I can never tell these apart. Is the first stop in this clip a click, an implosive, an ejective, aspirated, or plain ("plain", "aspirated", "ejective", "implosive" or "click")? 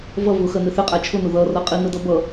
ejective